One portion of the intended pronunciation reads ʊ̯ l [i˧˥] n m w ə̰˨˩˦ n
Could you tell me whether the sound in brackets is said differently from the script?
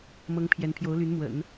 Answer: yes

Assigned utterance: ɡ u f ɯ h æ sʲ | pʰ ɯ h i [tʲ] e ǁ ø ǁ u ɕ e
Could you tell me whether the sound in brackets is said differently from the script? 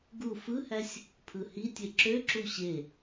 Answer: no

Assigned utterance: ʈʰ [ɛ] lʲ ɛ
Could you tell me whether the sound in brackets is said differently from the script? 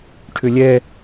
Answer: yes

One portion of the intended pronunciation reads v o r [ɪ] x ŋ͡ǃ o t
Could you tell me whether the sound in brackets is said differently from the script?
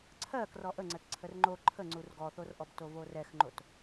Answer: yes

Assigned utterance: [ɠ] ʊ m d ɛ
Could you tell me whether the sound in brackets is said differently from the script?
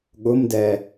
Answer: no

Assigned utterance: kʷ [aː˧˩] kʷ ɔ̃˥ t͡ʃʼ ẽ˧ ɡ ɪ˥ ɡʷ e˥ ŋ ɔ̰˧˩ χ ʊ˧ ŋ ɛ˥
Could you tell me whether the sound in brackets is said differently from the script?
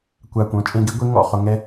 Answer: no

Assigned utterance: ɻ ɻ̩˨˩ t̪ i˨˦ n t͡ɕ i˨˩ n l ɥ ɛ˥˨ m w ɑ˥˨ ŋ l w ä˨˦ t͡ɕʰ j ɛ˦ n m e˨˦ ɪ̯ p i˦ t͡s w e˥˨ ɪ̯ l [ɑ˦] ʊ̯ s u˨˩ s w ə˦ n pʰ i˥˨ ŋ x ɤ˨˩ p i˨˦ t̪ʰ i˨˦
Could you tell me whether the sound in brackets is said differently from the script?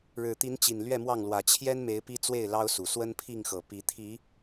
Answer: no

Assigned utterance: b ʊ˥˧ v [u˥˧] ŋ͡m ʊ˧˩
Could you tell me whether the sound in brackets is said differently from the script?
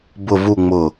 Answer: no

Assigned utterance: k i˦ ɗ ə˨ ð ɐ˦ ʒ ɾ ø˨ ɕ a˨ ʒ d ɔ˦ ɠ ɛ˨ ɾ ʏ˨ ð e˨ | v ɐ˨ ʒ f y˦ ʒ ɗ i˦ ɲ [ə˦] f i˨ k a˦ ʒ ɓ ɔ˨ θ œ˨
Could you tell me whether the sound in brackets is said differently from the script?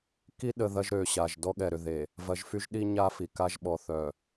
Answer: yes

